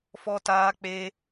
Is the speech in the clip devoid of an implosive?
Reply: yes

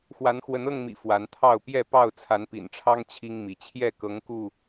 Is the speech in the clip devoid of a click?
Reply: yes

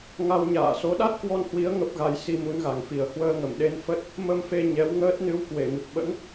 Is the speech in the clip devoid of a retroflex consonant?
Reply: yes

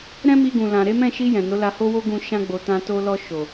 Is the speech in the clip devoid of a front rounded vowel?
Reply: yes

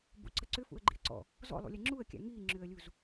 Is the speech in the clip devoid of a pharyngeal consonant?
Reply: yes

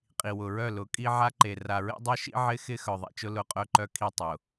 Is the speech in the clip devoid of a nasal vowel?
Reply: yes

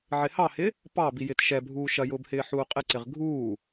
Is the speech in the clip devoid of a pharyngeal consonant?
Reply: no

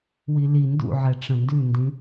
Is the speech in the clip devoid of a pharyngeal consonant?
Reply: no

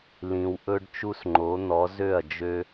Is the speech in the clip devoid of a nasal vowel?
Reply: no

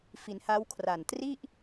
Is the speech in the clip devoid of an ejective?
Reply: yes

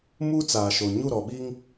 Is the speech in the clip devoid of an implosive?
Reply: no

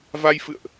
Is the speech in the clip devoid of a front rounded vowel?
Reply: yes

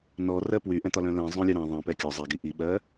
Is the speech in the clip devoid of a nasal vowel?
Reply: no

